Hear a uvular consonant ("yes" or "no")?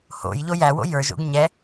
no